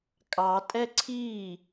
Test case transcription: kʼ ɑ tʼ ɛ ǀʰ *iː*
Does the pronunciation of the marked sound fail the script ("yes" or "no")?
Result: no